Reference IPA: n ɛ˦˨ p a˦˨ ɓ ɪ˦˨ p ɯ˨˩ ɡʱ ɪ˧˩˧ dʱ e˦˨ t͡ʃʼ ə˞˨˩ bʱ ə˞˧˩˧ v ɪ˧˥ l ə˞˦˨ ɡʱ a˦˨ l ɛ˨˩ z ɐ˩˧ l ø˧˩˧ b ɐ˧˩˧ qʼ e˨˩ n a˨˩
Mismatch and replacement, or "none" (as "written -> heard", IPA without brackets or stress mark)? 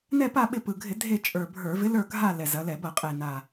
ø˧˩˧ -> ɛ˧˩˧